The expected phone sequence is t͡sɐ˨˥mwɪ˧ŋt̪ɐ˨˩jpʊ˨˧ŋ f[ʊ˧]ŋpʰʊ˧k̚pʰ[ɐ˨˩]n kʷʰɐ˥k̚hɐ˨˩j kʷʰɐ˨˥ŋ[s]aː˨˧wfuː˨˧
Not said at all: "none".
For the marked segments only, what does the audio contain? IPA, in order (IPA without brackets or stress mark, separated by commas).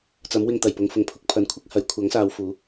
ʊ˨˩, ɐ˨, s